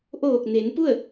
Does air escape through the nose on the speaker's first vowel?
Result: no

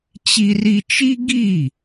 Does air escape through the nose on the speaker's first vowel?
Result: no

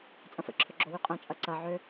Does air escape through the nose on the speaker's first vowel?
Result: yes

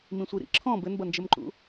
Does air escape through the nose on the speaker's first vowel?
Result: yes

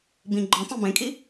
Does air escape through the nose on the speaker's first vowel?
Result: yes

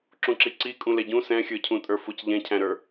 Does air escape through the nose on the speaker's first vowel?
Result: yes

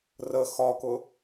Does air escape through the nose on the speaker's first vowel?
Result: no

